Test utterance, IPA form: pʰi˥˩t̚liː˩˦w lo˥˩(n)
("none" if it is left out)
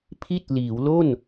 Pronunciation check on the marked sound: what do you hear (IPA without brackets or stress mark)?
n